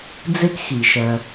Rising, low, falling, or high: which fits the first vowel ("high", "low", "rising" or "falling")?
high